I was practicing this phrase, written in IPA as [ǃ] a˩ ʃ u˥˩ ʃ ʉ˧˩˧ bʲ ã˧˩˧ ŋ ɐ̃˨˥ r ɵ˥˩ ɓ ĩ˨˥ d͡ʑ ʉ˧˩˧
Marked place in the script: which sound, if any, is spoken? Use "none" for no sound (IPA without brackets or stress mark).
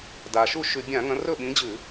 d